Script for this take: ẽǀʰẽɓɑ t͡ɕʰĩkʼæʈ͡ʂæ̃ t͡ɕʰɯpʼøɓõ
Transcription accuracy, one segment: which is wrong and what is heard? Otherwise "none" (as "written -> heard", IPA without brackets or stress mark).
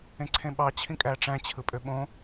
none